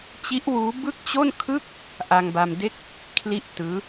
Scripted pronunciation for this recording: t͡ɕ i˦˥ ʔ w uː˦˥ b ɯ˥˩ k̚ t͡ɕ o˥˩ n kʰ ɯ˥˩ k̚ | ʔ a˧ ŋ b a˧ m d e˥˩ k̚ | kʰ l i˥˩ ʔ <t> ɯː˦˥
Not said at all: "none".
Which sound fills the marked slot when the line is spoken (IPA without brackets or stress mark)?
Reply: t